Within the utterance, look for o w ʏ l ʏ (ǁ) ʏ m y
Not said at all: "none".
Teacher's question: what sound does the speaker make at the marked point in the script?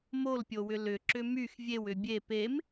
ǁ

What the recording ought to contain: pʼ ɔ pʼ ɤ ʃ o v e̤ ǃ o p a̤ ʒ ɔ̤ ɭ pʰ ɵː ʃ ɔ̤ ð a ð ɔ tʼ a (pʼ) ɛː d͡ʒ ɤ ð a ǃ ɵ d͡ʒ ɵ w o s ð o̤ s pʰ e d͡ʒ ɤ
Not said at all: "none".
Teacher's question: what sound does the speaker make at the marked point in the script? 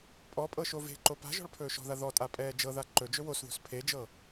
pʼ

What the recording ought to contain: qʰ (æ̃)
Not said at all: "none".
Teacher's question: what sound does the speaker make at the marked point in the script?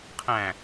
æ̃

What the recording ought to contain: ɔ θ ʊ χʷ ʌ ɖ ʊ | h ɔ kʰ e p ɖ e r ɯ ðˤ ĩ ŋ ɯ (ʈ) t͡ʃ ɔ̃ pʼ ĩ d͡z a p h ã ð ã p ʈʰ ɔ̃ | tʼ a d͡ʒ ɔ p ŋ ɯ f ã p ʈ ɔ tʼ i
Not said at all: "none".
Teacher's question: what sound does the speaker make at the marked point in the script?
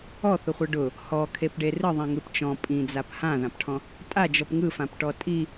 p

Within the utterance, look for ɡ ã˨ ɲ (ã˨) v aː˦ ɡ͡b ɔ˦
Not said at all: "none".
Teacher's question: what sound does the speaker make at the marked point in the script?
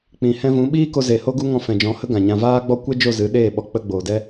ã˨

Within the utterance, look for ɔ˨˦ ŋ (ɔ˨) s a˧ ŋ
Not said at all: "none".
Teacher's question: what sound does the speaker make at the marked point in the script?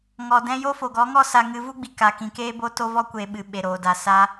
ɔ˦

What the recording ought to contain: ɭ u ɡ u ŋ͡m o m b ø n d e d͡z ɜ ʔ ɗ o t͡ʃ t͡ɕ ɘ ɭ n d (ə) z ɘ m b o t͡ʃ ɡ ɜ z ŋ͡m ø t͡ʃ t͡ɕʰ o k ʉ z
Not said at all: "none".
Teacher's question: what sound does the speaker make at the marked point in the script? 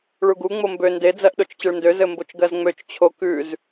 ø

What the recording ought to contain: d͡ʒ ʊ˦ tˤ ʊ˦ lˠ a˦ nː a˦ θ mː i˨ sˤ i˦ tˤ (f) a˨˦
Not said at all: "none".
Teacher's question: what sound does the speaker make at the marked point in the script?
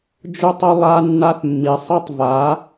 v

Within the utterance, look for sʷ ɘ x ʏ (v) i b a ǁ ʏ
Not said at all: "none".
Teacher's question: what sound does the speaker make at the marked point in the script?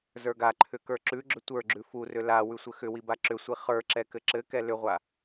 w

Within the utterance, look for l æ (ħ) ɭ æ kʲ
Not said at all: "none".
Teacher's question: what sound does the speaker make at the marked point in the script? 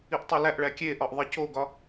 ʔ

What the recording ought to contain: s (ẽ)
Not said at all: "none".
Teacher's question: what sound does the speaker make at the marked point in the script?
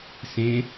ẽ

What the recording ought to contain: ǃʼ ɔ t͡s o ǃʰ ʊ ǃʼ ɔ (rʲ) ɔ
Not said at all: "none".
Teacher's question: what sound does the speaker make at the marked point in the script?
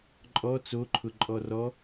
r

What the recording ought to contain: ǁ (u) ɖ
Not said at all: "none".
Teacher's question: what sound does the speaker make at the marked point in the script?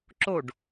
o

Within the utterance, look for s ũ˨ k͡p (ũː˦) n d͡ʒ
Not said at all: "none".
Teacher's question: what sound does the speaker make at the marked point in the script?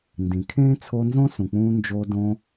ũː˦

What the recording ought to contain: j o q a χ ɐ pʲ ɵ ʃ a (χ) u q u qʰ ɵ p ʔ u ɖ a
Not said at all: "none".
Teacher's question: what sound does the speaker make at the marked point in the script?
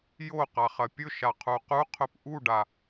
qʰ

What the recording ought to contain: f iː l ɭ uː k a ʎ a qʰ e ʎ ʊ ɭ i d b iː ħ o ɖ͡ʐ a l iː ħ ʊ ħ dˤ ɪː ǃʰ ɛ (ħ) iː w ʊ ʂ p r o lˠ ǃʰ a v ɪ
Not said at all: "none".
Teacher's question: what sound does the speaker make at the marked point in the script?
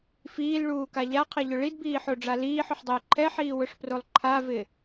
ħ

